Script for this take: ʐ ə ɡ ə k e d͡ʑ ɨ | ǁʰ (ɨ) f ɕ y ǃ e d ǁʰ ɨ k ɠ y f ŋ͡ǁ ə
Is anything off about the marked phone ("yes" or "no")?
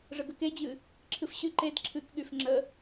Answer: no